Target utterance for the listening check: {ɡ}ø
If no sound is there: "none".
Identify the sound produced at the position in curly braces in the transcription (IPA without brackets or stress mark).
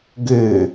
ɡ